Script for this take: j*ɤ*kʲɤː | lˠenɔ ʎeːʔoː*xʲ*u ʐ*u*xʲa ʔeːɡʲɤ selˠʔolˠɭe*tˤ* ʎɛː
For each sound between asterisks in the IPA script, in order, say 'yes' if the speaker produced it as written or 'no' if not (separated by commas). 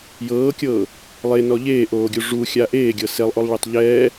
no, no, yes, yes